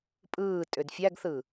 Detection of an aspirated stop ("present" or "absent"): absent